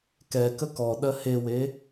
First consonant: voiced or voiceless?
voiceless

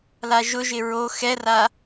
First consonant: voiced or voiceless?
voiced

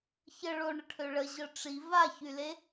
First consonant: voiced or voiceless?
voiceless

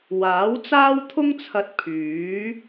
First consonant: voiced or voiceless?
voiced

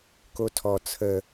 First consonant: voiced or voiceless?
voiceless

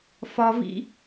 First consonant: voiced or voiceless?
voiceless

